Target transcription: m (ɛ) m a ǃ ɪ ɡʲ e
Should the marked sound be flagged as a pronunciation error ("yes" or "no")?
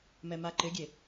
no